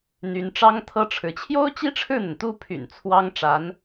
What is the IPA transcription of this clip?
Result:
n̪ y˧˥ n ʈ͡ʂ ɑ˥ ŋ t̪ʰ ɤ˥ ʈ͡ʂʰ ɻ̩˧˥ t͡ɕʰ j o˥ ʊ̯ t͡ɕ i˥ ʈ͡ʂʰ ɻ̩˥˩ n̪ ə˩ n t̪ u˥˩ pʰ y̰˨˩ n t͡sʰ w ɑ˥ ŋ ʈ͡ʂ a˧˥ n

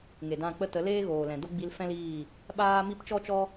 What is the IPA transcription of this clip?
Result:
ŋ e˨ d ã˦˨ k͡p ə˦ t ə˨˦ l eː˦ ɣ oː˨ l ɛ̃˨ d o˦ ɡ͡b i˧ l f ɛ̃˦ l iː˦˨ | ɓ aː˦ m i˦ p t͡ʃ ɔ˦ t͡ʃ ɔ˦

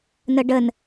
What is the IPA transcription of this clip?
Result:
n ə ɖ ə n

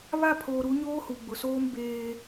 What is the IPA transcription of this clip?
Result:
β a˦˨ pʰ oː˨ ɾ u˨˦ ɲ oː˦ h u˨ ɡ͡b ʊ˨ s oː˦ m b eː˦

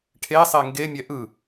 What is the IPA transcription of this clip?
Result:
ʈʰ e sˤ e ŋ ɡ e mʲ ɛ ʔ ɯ

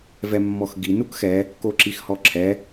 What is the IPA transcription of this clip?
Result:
v ɛ mː ɔ x ɡ i n u k x ɛ | k o ǁ i x h ɔ ǁʰ ɛ

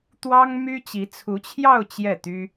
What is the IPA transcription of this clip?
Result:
t̪ w ɑ˥ ŋ m y˥ t͡ɕ i˧˥ t͡sʰ u˧˥ t͡ɕʰ j ɑ˥˧ ʊ̯ t͡ɕ j ɛ˥˩ t̪ y˥

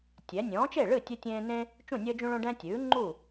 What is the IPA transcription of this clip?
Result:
tʲ ɛ˩˥ nʲ ɔ̃ː˩˥ t͡ʃ e˥˩ ɭ ɨ˥˩ tʲ ɨ˦ tʲ ẽː˦ n ẽ˦ | t͡ʃ ũ˥˩ nʲ əː˦ d͡ʒ ũ˦ ɭ õ˦ ɖ ɛ̃˦ tʲ ʉː˩˥ ŋ͡ǃ u˥˩

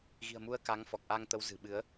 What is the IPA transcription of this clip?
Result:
ɣ i̤˨˩ ə̯ m u˨˦ ə̯ k a˨˦ ŋ f ɔ˨˩ k̚ ʔ a˧ ŋ t̪ ə˨˦ w z ɨ̤˨˩ ɓ ɨ˨˦ ə̯

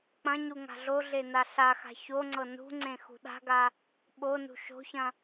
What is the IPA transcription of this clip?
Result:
k͡p ɐ̃ ɲ u ŋ a̤ ɮ o ɮ e n a ɬ a x a̤ ç o ŋ͡ǀ ɤ n ṳ ŋ͡ǀ ẽ x ṳ ɗ a̤ ɡ a | ɓ o n ṳ ʃ o̤ ç ɐ̃

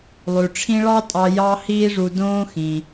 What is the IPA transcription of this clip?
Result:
lˠ ʉ˩ ʈ͡ʂʰ ĩ˥ ɭ ɑ˥ tʼ ɑ˧ j ɑ˥ h iː˥ ʐ u˧ d õː˥ x ĩ˩

